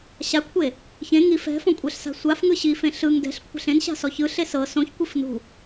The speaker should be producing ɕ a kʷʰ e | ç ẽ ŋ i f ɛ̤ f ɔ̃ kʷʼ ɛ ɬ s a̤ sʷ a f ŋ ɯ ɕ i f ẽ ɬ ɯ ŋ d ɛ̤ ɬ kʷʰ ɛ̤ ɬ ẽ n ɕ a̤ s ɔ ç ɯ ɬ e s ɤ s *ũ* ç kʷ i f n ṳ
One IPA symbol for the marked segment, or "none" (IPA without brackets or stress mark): õ